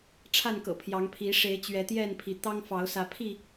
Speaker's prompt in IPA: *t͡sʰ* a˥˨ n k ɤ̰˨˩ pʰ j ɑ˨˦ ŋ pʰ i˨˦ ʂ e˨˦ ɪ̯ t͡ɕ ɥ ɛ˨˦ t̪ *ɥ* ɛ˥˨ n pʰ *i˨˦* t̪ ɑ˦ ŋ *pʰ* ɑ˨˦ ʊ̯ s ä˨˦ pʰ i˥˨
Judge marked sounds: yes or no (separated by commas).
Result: no, no, yes, no